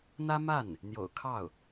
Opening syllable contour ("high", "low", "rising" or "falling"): high